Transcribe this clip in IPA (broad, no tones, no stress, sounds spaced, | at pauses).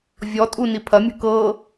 vʲ ɔ tʼ u n i pʰ ɐ mʲ ṳ k ɤ